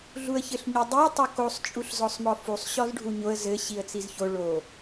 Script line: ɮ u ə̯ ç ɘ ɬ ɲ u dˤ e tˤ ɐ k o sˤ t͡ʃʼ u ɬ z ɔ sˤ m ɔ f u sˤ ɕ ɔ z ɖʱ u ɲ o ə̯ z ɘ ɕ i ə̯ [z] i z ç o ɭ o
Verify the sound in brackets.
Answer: incorrect: t͡s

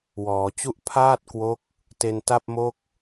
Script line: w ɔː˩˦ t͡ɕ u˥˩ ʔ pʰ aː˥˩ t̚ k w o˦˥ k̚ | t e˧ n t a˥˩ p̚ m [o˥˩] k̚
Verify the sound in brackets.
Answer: correct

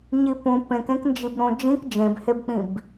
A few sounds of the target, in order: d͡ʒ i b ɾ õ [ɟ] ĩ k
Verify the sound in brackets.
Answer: incorrect: d͡ʒ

